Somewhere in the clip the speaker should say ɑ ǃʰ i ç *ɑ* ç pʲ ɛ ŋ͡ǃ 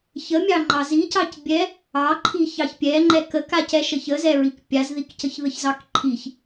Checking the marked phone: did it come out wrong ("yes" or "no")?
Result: no